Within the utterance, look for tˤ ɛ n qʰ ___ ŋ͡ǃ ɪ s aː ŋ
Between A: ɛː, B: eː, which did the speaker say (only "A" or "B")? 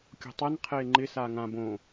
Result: B